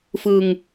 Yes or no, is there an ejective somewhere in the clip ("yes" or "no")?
no